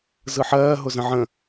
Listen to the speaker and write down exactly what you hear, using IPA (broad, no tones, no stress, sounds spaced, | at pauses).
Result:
z ɯ ħ ɜː ɦ ʊ z ə̃ ʕ ə̃